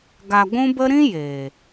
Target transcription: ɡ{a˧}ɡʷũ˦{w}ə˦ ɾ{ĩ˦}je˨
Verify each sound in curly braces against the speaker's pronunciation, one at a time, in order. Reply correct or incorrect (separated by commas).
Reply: correct, incorrect, correct